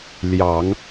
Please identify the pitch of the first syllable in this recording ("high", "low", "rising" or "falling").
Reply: low